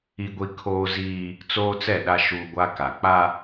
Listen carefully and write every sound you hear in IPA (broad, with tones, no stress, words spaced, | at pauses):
i˦ɡʷi˦ kʰoː˦ziː˦ | t͡soː˦t͡sɛ˦˨ɗa˦ ʃuː˦ɡʷa˦ ka˨k͡pa˦